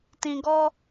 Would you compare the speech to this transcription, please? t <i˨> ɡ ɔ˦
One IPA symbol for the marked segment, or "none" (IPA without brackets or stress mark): ĩ˨